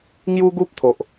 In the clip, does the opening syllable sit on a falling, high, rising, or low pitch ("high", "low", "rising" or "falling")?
high